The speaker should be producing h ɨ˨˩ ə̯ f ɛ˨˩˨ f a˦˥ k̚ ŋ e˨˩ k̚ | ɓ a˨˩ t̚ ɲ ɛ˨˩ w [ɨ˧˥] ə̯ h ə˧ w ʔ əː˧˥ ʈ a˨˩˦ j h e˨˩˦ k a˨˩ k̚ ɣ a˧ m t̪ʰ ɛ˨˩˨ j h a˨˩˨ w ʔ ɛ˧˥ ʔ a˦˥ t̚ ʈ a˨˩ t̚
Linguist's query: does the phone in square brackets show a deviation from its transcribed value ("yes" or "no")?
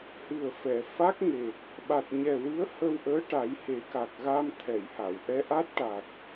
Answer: no